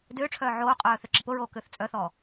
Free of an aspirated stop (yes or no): no